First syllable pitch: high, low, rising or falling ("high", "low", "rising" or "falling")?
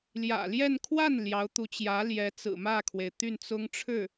low